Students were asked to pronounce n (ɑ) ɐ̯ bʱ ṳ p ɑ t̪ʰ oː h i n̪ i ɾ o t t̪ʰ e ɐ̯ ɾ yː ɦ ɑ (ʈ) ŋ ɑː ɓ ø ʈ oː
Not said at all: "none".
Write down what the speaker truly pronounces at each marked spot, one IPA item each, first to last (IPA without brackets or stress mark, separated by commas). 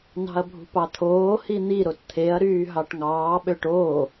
ɑ̤, ʈ